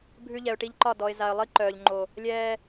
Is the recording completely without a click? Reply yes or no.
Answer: no